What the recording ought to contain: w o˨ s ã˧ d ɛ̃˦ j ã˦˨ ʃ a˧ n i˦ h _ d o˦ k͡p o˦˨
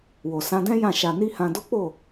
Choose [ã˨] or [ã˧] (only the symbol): ã˧